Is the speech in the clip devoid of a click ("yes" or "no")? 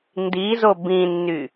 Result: yes